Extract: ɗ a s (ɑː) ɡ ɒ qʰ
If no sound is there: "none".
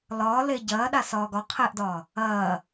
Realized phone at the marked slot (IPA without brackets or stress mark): ɒː